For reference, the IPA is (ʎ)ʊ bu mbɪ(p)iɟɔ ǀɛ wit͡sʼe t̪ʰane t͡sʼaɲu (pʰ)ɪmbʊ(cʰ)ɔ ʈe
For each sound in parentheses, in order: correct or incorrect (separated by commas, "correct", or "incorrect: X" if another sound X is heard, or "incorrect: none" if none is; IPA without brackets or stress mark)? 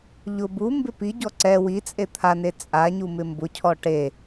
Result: correct, correct, incorrect: m, correct